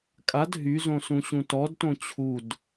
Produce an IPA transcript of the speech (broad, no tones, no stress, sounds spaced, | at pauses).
kʼ a d ɦ y z õ s ũ ɕ ũ t ɔ d t õ t͡ɕʰ u d